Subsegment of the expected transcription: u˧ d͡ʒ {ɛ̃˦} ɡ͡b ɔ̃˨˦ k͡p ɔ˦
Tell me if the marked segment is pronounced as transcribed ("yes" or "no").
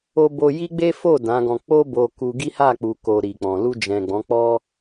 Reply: no